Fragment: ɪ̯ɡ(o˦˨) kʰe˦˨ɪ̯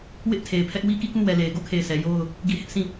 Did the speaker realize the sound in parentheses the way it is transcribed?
yes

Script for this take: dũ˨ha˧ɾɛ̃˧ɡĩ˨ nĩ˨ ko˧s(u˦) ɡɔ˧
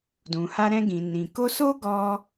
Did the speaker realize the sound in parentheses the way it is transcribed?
no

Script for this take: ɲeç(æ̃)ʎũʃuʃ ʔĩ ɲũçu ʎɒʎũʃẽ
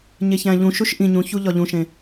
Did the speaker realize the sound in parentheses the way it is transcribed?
yes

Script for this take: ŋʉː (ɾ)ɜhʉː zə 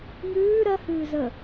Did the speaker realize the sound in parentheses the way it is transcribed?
yes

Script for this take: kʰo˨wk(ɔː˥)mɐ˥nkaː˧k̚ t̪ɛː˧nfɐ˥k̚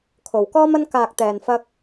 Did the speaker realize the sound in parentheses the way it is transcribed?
yes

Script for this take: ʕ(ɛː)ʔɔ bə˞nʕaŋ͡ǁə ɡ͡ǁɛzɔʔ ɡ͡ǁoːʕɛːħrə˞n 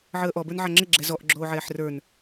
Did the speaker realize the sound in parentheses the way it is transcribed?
no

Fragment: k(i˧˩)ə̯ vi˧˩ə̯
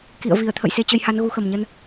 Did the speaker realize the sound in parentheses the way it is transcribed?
no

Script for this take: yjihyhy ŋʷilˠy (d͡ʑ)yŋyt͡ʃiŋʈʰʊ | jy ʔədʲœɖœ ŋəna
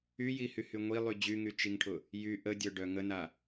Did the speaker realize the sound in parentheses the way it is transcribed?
yes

